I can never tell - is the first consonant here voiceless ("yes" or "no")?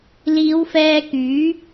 no